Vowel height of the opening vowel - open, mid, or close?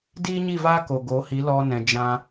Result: close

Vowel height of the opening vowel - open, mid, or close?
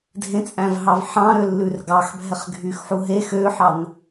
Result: mid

